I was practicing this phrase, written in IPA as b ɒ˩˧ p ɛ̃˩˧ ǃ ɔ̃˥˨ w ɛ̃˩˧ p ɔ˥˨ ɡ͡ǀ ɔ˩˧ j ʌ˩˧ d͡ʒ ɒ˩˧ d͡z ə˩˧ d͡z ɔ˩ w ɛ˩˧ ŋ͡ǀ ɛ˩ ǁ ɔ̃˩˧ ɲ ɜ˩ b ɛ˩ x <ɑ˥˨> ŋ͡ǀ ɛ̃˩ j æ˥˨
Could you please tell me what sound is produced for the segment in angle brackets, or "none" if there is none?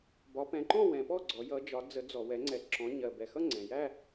ʌ˥˨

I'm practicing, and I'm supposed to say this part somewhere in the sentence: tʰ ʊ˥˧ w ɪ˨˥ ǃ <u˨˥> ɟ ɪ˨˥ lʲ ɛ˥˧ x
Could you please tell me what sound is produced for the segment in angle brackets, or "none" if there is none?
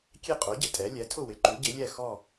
u˨˥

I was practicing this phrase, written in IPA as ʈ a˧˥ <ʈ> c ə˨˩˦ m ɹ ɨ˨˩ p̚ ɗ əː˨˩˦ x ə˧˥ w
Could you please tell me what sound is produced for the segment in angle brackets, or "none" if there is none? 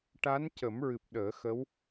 n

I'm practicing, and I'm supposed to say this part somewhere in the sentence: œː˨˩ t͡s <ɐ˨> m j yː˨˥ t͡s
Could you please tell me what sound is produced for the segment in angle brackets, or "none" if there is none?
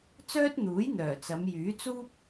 ɐ˨˧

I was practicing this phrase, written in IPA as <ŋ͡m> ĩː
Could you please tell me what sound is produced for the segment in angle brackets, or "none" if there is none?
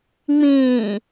ŋ͡m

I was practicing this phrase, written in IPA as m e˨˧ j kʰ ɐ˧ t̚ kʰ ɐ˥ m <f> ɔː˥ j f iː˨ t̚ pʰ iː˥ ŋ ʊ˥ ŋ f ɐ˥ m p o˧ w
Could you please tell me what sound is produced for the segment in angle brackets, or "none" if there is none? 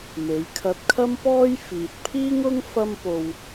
p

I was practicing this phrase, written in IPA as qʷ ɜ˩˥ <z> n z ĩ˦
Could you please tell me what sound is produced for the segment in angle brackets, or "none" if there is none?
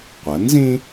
none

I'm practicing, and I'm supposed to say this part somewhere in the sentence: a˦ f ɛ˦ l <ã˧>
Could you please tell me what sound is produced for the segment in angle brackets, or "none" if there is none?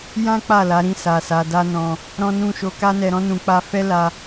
a˧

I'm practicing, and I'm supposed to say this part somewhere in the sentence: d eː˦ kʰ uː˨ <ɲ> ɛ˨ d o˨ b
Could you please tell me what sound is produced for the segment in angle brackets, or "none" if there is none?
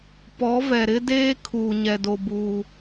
ɲ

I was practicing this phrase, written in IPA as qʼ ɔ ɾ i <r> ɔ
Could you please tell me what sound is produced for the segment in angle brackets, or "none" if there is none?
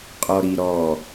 ɾ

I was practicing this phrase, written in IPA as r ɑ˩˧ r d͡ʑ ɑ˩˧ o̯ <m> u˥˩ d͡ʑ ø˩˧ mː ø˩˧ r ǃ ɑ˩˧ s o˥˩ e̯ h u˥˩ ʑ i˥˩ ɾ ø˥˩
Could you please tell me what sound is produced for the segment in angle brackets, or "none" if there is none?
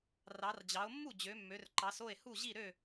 mː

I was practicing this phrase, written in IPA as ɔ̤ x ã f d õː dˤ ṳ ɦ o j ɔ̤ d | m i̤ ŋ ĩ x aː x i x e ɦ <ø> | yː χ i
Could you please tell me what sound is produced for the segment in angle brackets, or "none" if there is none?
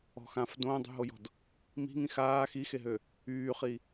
ø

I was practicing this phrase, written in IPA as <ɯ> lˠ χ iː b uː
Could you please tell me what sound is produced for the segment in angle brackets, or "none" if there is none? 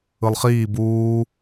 ɯ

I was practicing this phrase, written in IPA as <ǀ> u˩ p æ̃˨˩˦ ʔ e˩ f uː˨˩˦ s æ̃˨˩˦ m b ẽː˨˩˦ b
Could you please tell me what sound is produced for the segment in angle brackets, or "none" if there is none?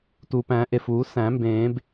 t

